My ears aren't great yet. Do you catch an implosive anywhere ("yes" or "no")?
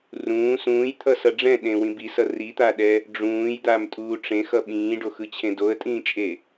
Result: yes